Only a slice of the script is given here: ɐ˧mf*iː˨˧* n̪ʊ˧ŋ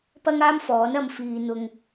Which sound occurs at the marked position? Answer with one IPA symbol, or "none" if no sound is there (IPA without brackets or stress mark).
iː˨